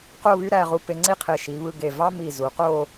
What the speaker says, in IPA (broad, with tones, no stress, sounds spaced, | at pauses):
q o˥˧ β y˥ ɾ æ˧ ʁ u˧ p e˧ ŋ͡ǀ i˥˧ qʰ e˧˩ ʃ i˩˧ β ɯ˧ ɡ e˧˩ v ɑ˥ m i˧˩ z u˩˧ q o˥˧